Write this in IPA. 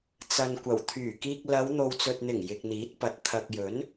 t͡s ɐ˨ n kʷ ɐ˨˩ w t̪ʰ yː˨˩ k iː˧ k̚ l ɐ˨˧ w n̪ o˨ w t͡s ɵ˨ t̚ n̪ ɪ˨˩ ŋ j ɪ˨ k̚ n̪ iː˨˥ t̚ p ɐ˨˥ t̚ t̪ʰ ɐ˨ k̚ j ɵ˨˥ n

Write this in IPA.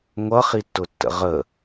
ŋʷ ʌ χ i tː ʊ tː ə̰ ʁ ə

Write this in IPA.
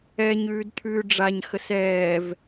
ɛ ɲ ʉː d t̪ʰ ʉː ɖ͡ʐ a ɲ x ə s ɛː v

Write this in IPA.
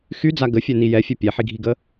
x y d͡z a ɡ ə fʲ œ n i j ɛ fʲ œ pʲ ɛ ħ i ɡʱ i ɡ ə

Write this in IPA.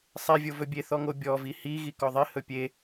sˤ e vʲ o v ɵ bʲ e θ ɔ ŋ o bʲ ɔ v i h i ɣ i k ɔ ðˤ i h ɵ pʲ e

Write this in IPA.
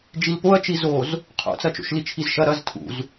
d͡ʒ i l p o ɐ̯ t͡ʃ i z o z | qʰ o̰ t͡s ɐ t͡ʃ o̰ ʃ l i t͡ʃʰ i z ʃ ɐ ɾ ɐ z tʰ ṵ z

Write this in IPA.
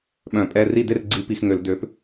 ɓ œ̃˧˩˧ pʼ ɛ˧˥˧ r i˥˨ d e˥˨ r ɡ͡ǀ i˨˥ p i˧˩˧ x ŋ ø˧˩˧ l d ø˨˥ p

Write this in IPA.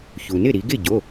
ç u˩ n ɪ˥˩ ɾ i˩˧ ɡ ɪ˥˩ ɟ o˩˧˩

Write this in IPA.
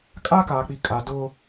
kʼ a˦ k aː˨ k͡p i˨ kʼ a˨ d ʊ˦

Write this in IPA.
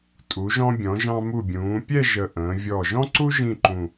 tʼ u˩˧ ʒ ɔ̃˧ bʲ ɔ̃˩˧ ʒ ɑ̃˧ m u˧˩ bʲ ũː˩˧ pʲ ɛ˥˧ ʒ ə˧˩ ʔ ə̃ː˩˧ vʲ ɔ˧˩ ʒ ɔ̃˥ ǀ u˥ ʒ ĩ˥˧ ǃ ũ˧˩

